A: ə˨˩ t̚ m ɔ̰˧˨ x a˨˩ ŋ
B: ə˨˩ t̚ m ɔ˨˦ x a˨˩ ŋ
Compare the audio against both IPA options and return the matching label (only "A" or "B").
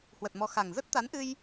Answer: B